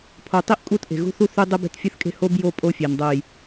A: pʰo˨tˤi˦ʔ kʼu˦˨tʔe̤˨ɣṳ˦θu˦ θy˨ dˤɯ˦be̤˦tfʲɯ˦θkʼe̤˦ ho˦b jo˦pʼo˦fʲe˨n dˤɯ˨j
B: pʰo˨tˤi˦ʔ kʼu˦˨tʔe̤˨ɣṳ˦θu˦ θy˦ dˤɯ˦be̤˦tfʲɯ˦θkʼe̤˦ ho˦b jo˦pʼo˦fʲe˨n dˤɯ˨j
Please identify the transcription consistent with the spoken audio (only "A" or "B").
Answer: B